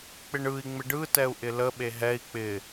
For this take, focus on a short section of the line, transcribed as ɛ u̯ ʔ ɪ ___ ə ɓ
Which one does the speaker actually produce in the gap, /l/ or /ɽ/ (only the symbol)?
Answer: l